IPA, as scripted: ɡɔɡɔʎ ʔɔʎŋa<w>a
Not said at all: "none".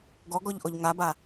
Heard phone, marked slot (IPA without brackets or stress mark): b